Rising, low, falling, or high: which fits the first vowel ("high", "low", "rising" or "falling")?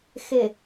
low